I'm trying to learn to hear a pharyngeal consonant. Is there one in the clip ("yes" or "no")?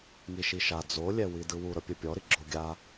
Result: no